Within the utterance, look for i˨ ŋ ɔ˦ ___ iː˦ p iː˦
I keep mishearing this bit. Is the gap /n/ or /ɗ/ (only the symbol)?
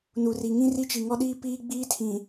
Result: ɗ